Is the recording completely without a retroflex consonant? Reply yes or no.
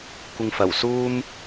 yes